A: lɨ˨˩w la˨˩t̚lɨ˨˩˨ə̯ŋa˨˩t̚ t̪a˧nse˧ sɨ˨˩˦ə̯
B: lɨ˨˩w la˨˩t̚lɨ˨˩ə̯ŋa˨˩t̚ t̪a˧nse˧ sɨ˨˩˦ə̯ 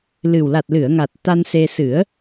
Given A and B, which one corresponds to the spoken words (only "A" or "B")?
A